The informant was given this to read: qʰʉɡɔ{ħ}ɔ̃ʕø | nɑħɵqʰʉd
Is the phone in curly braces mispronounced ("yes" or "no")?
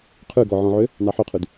yes